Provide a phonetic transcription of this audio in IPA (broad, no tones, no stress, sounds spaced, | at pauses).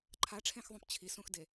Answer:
ǃʰ a ʈ͡ʂʰ ẽ x ðˤ ũ p t͡ɕʰ i s ũ x d e